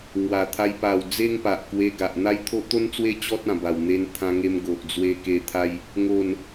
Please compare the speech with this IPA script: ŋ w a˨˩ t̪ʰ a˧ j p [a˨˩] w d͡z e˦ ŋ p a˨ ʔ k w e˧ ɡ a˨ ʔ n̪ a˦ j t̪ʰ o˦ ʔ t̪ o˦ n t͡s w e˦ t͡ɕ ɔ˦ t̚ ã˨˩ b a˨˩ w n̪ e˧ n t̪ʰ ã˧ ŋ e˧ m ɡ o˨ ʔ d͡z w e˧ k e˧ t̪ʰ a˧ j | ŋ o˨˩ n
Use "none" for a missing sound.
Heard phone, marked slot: a˨˩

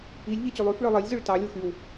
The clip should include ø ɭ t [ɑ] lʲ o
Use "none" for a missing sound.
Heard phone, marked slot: ɑ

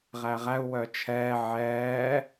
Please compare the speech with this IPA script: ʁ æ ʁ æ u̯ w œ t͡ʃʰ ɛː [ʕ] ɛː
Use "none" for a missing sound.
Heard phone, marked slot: ʕ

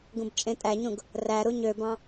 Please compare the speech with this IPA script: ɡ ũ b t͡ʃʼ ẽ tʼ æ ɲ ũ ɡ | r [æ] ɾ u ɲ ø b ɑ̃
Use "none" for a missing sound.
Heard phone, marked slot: æ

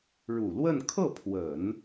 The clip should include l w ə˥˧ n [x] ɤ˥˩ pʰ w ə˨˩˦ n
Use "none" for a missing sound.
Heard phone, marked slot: kʰ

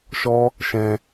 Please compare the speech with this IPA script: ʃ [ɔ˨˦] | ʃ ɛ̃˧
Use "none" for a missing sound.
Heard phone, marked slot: ɔ˦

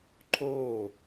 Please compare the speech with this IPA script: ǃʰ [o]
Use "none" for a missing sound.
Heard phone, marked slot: oː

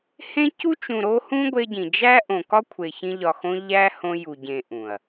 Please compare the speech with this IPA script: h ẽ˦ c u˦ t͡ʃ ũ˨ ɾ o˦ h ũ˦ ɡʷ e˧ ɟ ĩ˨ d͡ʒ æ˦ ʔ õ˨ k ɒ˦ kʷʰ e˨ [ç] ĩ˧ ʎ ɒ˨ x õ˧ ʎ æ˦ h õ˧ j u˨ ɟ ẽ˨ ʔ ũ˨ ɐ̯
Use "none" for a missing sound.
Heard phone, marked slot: ç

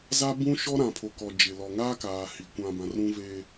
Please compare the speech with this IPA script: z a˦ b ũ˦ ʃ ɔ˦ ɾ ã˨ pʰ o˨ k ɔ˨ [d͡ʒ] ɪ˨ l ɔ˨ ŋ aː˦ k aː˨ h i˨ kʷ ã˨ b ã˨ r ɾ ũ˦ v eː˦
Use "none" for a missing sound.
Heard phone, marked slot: d͡ʒ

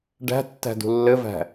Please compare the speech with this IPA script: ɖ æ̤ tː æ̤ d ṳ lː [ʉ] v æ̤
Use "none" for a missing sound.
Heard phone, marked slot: ɘ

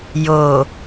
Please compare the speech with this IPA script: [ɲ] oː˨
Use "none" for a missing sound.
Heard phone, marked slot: j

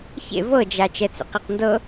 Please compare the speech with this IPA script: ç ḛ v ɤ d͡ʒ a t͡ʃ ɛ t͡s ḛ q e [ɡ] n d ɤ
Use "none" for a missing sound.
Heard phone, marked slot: q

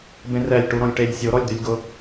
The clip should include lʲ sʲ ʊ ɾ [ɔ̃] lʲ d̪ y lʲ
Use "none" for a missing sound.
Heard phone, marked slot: ɔ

